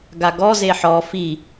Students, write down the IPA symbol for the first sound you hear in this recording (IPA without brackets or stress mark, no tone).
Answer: ɡ